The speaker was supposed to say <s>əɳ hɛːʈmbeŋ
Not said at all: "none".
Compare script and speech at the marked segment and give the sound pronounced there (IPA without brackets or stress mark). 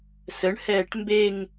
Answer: s